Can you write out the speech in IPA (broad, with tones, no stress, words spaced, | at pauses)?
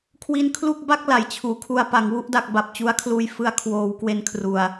kʰwi˦˥nkʰlu˥˩k̚ ba˥˩k̚ la˩˦jt͡ɕʰuː˩˦kʰu˧a̯ pa˩˦ŋwu˦˥ʔda˨˩k̚ ba˨˩p̚t͡ɕu˦˥a̯kʰluː˧j fɯ˧a̯kʰwoː˩˦wkwe˨˩n kʰru˨˩a̯